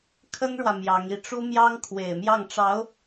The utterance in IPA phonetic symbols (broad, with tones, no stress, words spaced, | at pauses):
kʰə˥nɻwä˨ mjɑ˧˥ŋi˥˩ ʈ͡ʂu˥ mjɑ˥ŋkʰwe˨˩ɪ̯ mjɑ˥˩ŋʈ͡ʂɑ˧˥ʊ̯